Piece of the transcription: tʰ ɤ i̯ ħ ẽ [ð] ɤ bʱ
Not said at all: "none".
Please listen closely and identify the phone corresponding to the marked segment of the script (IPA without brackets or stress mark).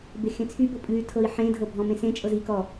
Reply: dʱ